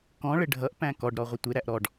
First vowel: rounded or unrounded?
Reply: rounded